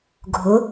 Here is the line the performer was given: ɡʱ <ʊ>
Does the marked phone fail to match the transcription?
no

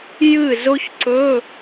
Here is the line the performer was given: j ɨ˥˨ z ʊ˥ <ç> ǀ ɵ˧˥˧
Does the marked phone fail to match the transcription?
no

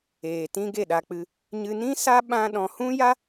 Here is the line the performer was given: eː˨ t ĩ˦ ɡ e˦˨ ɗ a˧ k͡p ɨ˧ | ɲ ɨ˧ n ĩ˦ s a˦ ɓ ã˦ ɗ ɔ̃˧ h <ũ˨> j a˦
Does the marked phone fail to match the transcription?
yes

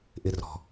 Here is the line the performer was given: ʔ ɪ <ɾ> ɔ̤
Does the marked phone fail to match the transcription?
yes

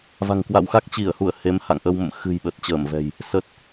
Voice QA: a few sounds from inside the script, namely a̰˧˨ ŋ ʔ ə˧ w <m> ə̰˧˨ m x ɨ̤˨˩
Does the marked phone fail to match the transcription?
no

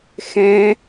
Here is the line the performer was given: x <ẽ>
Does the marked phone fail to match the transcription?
yes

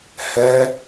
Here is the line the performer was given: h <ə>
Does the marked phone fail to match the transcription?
yes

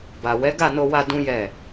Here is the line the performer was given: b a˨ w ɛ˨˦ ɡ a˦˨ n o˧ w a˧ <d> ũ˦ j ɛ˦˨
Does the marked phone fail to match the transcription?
no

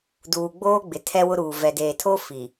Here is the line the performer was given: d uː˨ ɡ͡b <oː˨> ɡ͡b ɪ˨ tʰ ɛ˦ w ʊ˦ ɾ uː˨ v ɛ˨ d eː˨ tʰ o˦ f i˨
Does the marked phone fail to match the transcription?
yes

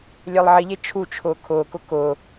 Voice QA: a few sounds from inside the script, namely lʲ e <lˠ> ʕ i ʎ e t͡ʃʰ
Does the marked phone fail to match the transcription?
no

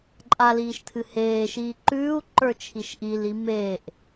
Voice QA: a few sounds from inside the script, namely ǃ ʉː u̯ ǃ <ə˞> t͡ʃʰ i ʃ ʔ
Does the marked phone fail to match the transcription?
no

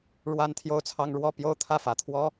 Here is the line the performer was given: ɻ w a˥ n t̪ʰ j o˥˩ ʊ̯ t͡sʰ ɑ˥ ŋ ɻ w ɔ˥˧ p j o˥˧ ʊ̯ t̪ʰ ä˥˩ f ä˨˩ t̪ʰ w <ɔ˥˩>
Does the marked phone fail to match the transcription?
yes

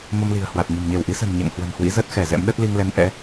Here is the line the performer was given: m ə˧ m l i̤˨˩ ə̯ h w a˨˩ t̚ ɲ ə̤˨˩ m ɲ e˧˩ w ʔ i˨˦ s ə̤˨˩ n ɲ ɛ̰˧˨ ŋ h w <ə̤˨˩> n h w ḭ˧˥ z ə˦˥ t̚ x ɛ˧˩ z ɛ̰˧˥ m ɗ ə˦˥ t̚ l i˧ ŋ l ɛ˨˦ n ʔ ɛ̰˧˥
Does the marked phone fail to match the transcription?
no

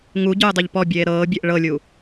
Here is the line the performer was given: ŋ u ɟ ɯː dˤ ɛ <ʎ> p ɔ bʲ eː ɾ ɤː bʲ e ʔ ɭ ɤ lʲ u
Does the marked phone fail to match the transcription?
no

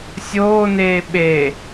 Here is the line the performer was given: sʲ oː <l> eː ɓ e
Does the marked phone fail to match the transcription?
yes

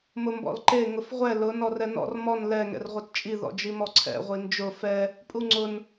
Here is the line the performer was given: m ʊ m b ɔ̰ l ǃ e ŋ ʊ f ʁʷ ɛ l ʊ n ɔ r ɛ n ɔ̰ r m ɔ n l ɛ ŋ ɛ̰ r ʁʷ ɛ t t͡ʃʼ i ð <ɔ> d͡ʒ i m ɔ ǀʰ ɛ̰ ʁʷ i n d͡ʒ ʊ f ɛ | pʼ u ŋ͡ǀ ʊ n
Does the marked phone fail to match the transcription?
yes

